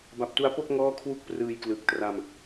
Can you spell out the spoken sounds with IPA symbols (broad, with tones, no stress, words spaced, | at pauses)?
ba˨˩p̚tu˦˥a̯po˥˩k̚ ŋɔː˥˩kʰwu˥˩k̚prɯː˧jklɯ˨˩k̚ tra˧m